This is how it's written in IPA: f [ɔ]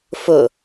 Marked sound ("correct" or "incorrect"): incorrect